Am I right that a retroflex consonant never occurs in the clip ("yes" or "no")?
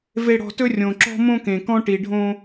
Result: no